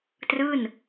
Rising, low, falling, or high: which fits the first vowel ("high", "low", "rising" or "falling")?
falling